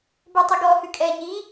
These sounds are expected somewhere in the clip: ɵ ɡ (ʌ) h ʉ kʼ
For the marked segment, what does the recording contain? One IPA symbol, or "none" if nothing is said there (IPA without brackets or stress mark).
ɔ